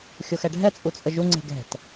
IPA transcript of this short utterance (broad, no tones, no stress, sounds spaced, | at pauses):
xʲ o x ɛ ɖʱ ɛ t͡sʼ u t͡sʼ ə ʒ u ŋ͡ǀ e̤ ɡ ɛ̤ t